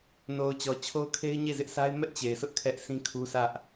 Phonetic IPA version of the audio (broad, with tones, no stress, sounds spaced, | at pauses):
n o˨ ʊ̯ t͡ɕ ɔ˨ t͡ɕʰ o˦ ʊ̯ kʰ e˦ ɪ̯ ɲ e˦˨ z ɪ˦ ʔ sʰ a˦ ɪ̯ m ɛ˦ ʔ t͡ɕ e˨ ɪ̯ s ʊ˦ ʔ kʰ ɛ˦ ʔ sʰ ĩ˦ kʰ u˦ sʰ ä˦ ʔ